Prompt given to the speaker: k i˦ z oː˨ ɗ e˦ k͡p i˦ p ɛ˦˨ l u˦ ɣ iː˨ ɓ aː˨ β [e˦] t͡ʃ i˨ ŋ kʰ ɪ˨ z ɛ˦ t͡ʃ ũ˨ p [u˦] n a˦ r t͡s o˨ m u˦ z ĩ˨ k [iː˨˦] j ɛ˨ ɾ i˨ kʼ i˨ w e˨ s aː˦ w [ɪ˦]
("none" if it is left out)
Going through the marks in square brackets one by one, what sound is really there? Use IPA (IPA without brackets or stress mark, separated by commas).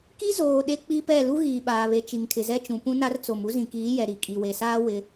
e˨, ũ˦, iː˨˦, ɪ˦